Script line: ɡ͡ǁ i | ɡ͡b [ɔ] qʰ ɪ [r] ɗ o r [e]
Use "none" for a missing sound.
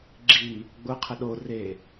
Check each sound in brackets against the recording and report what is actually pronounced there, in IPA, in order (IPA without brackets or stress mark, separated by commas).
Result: ʊ, none, e